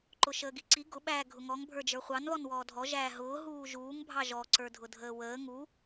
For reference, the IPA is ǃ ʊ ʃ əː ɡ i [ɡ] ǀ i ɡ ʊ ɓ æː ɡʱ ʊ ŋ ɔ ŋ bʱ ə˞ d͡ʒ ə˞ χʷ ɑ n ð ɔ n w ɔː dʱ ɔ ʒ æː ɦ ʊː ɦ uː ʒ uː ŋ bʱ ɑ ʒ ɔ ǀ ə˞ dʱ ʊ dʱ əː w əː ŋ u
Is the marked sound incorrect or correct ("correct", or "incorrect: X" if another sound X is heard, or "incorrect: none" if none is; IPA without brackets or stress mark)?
incorrect: none